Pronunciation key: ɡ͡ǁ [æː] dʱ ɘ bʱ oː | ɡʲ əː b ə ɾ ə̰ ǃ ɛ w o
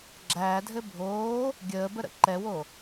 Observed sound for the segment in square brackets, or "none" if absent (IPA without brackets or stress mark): æː